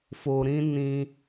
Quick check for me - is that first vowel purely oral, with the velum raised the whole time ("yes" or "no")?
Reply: yes